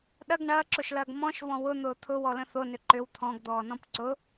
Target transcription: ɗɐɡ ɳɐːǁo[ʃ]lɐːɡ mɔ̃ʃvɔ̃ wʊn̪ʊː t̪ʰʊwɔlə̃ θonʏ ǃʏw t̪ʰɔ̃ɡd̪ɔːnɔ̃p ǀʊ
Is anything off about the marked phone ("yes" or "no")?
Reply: no